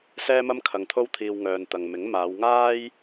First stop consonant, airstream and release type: aspirated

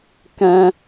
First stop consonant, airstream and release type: plain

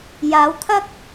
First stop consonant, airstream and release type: aspirated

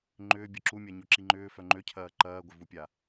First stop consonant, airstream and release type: click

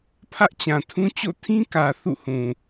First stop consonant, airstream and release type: aspirated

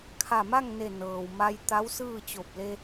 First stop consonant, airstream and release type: aspirated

